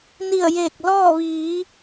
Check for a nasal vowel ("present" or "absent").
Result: absent